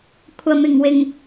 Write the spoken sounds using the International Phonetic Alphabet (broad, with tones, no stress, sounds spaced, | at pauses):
kʷʰ ɐ˨ m ɪ˨˩ ŋ w ɪ˨˩ ŋ